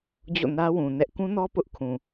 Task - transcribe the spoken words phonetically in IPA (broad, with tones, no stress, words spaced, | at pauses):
d͡ʑo̰˦˨nä˦wũ˨nɛ˦ʔ kũ˦nɔ˦ pʊ˦ʔ kʰũ˨